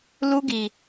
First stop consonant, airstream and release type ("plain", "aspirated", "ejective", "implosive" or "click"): plain